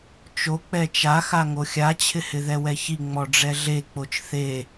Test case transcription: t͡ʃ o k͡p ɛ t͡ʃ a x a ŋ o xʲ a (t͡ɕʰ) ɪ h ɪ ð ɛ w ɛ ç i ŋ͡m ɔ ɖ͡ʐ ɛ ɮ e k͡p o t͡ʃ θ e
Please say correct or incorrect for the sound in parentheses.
correct